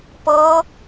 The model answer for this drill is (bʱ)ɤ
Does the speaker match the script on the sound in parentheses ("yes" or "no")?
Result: no